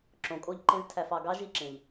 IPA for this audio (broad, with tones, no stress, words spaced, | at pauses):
ǁõ˨kʼo˦˨ʎ ǃẽ˧ztʰæ˨f ɑ˨ɡɑ˦ ʒi˦˨ǁẽ˨ʎ